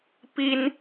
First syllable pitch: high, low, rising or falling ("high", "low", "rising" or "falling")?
high